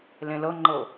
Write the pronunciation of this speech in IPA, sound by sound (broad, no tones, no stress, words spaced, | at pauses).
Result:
lẽlɤŋ͡ǃɤ